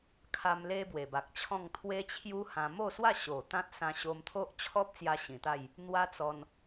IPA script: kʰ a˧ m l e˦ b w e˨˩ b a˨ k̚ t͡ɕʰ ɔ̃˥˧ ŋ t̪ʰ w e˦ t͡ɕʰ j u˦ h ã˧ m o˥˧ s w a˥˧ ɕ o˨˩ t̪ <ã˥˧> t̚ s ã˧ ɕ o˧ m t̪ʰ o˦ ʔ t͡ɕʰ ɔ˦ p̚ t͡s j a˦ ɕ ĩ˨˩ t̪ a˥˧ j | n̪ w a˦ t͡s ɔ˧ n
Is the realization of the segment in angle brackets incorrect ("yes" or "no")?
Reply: yes